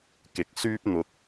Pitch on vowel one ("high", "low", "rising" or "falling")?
rising